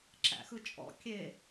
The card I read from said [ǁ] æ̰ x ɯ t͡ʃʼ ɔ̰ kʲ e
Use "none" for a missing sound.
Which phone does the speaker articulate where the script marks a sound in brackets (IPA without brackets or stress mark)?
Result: ǁ